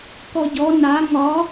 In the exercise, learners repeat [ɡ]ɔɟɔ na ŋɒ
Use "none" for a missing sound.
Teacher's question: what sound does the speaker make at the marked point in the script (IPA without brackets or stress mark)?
k